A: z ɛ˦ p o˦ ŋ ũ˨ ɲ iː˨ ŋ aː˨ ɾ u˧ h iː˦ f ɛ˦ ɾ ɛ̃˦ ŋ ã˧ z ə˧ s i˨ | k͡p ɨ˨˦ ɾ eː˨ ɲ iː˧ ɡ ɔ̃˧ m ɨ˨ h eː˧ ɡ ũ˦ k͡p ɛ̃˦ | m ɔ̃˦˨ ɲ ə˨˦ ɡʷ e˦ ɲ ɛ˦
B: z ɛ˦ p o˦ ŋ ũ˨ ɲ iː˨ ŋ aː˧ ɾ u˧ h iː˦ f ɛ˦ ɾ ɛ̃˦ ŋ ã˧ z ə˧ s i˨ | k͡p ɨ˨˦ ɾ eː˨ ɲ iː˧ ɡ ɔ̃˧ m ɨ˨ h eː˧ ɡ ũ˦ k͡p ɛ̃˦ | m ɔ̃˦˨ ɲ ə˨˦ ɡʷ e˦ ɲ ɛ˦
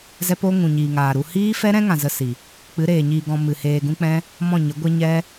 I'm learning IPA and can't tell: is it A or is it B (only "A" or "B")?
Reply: A